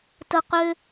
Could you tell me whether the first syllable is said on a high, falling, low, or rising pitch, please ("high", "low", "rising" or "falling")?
high